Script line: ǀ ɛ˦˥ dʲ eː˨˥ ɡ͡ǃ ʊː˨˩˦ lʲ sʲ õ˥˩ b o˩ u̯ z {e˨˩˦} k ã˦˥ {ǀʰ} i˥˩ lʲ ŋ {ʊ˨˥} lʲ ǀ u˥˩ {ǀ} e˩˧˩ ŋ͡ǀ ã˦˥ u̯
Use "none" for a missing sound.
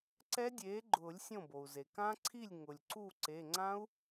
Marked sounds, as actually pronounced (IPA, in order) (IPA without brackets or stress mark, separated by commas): e˩, ǀʰ, ʊ˩, ǀ